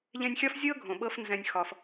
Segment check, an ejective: absent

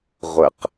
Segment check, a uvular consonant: present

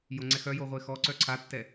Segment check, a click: present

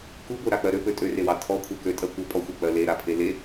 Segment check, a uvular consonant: absent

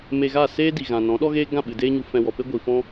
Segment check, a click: absent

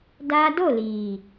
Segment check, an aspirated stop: absent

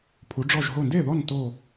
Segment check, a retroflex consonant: present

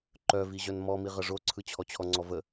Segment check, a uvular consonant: present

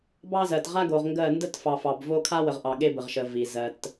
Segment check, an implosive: present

